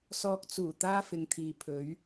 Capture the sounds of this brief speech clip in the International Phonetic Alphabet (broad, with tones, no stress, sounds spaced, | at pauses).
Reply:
s ɔː˧ k̚ t͡s uː˨˩ t̪ aː˥ f ɪ˨˧ ŋ t̪ʰ iː˨ pʰ ɵ˨˥ ɥ